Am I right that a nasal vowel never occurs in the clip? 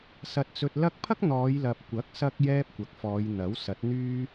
yes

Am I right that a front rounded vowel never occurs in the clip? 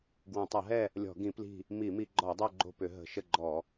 no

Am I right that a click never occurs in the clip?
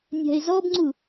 no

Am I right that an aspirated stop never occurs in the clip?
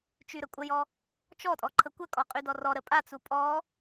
no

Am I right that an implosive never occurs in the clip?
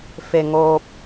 yes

